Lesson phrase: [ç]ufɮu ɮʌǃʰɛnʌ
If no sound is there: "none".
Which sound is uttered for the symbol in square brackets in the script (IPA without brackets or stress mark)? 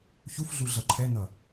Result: ç